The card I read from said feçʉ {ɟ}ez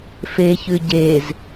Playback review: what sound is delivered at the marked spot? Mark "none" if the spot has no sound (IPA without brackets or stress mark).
ɟ